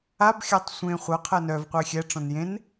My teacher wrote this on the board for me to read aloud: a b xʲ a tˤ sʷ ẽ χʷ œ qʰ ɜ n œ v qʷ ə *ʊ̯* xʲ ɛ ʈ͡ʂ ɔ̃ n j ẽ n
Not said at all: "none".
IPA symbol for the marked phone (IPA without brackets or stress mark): ɪ̯